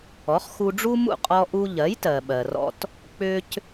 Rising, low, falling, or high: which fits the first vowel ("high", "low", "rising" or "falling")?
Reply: rising